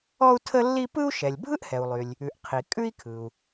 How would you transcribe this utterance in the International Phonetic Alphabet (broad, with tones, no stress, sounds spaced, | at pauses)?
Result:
ɔ˥ u̯ tʰ ə˥ lː i˥ p ɯ˥ u̯ ʃ ɛ˩ lʲ bʱ ɯ˥ ʔ h ɛ˩ u̯ lˠ y˩ lʲ | ʉ˩ ʔ qʰ i˩ kʼ ʉ˥ i̯ kʰ ɯ˩ u̯